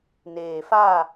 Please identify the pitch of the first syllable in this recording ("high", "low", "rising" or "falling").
low